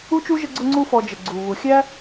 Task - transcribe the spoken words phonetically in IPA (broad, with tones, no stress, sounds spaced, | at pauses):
u˥ t͡ʃ u˥ ʒ ə˦ ɡ͡ǀ ʊ˦ ŋ͡ǀ u˦ f ɔ˨ d͡ʒ ə˩ ɡ͡ǀ u˩ β u˩ xʲ æ˥